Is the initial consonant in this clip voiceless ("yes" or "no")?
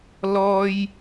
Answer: no